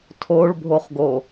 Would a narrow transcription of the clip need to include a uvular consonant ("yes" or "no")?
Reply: yes